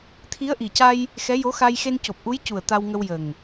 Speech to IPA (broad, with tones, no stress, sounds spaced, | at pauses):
t̪ʰ i˧˥ ə̯ ʔ i˨˩ c a˧ j | x ɛ˧˥ j o˧˥ x a˧ j x e˧ n c o˨˩ p̚ ʔ u˧˥ j c u˨˩ ə̯ t̪ a˧ w ŋ ə˧ w j ə˨˩ ŋ